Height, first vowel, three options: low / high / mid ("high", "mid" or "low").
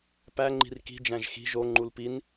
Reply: low